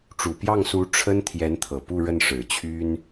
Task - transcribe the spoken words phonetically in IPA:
ʈ͡ʂu˨˩pjɑ˥˩ŋsu˧˥ ʈ͡ʂʰə˥n t̪ʰjɛ˧˥nt̪ʰɤ˨˩ pu˥˧ɻə˥˩nʂɻ̩˨˩ t͡ɕʰy˥n

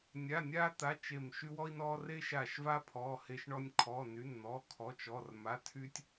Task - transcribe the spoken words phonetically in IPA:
nʲa˧˥˧nʲa˥ t̪a˧˥˧t͡ʃe˦˨m ʃy˥wɔ˥i̯nɔ˥ re˥ʃa˦˨ʃva˥ pʰɔ˧˥˧he˥ʃɳɔ˥nʲ kʰɔ˧˥˧ny˧˥˧n n̪ɔ˧˥˧kʰɔ˧˥˧t͡ʃɔ˧˥˧r ma˧˥˧tʰy˥tʲ

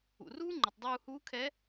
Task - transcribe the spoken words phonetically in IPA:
ṵ˩ruː˥ŋ͡ǃɘ˩tˤ dˤuː˧huː˧˥ kʰɛ˧˥

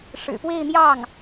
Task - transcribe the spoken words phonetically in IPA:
ʂɻ̩˨˩pwe˥˧ɪ̯n̪jɑ˥˩ŋ

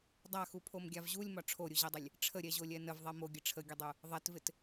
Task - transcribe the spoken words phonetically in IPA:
dˤaxupʰomɡʲav ʑulʲmɒ ʈ͡ʂʰoɾʲuʑɛdˤɪlʲ | ʈ͡ʂʰəɾʲɛʑolʲɛ nəvðˤɛ moɡʲə ʈ͡ʂʰəɡʲədˤu | ðˤɛtvɪt

